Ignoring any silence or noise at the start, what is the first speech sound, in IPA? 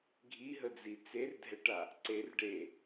ɡʱ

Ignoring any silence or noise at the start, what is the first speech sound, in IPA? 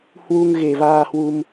h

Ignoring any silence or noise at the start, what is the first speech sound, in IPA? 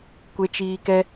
kʷ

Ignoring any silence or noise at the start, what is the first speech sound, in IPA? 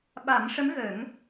ɓ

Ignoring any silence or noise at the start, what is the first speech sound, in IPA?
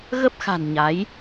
ɣ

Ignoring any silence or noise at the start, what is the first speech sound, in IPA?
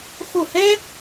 x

